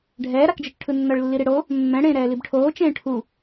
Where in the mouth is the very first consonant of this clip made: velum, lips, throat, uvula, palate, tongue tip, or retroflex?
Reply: retroflex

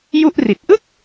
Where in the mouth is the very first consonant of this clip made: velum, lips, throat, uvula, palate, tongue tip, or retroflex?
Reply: palate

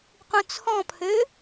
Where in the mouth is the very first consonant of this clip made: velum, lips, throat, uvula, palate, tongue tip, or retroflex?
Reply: uvula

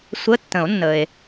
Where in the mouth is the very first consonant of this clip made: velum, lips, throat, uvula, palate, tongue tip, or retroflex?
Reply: tongue tip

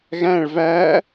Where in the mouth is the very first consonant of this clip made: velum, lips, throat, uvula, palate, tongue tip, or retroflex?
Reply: velum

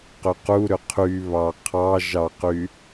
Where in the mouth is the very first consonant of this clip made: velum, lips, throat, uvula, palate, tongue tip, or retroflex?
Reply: uvula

